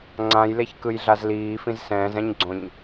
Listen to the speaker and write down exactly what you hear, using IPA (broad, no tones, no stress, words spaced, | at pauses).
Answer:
ŋ͡ǀãjleçkɯjɮaz liːfĩz sɛ̃ːzɛ̃ɲɡ͡ǀõɲ